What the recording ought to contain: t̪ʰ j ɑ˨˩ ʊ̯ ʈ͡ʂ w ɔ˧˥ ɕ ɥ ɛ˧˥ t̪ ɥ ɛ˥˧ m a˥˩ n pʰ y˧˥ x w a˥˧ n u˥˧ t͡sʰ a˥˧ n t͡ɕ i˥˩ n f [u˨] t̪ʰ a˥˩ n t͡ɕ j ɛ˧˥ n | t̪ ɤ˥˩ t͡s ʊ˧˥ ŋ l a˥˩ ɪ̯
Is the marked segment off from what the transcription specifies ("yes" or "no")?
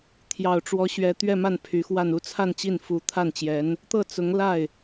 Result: yes